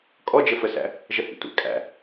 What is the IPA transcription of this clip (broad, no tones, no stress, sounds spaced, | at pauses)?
kʼ ɔ d͡ʒ ə f ə s æ̰ | ʒ ə h ḭ tʷ æ̰ kʼ æ̰